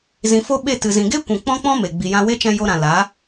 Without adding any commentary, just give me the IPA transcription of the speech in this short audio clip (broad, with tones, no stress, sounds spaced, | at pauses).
z ĩ˨ f o˦ ɓ e˦˨ t ɨ˨ z ĩ˨ ɡ e˦ kʷ ũ˨ k͡p ɔ̃˦ k͡p ɔ̃˦ m e˨ ɡ͡b i˨ j ã˧ w e˦ t͡ʃ ɛ̃˧ j o˧ ɾ ã˨ l a˨˦